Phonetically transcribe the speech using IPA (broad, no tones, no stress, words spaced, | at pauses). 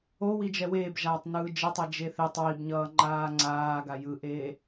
o wid͡ʒɛweːb ʒaːtˤnɯːd͡ʒetˤe d͡ʒeθetˤ wibɲʌː ŋ͡ǃaːŋ͡ǀaːɡa jɯʔeː